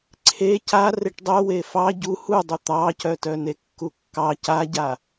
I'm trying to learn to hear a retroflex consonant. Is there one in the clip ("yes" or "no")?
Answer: yes